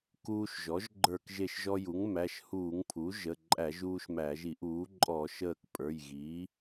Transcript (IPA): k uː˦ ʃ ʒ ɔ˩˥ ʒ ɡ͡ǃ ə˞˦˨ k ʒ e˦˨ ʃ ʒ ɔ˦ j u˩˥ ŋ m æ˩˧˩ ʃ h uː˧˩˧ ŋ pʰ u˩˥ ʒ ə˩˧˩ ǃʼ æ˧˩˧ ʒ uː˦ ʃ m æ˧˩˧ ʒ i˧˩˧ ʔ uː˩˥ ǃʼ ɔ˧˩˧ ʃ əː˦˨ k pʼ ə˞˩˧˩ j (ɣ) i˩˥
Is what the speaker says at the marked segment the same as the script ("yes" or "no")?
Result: yes